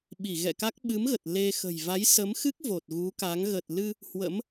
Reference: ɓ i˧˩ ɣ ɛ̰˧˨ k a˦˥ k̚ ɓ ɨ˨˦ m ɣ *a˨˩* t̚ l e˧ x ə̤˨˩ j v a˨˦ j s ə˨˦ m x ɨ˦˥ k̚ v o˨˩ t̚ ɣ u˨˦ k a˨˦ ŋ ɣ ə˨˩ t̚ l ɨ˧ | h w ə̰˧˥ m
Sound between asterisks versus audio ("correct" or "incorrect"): incorrect